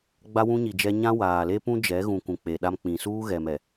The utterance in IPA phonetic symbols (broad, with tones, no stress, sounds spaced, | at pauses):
ɡ͡b a˦ w ũ˦ ɲ i˨ d͡ʒ ɛ˦ ɲ ã˦ w aː˨ l e˦ p ũ˦ d͡ʒ ɛ˨˦ ɣ ũ˨ k ũ˨ k͡p e˨ ɗ a˦ m k͡p ĩ˨ s uː˦ ɣ ɛ˨ m ɛ˨